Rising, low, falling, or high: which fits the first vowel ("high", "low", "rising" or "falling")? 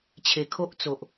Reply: low